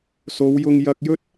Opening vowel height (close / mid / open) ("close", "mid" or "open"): mid